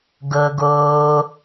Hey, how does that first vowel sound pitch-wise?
low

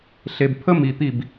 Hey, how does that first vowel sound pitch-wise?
low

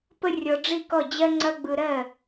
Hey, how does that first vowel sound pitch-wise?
high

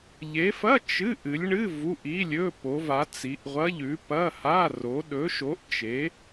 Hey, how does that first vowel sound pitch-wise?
rising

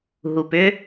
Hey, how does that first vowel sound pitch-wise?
low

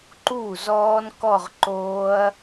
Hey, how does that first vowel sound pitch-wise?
falling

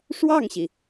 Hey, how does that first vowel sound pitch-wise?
falling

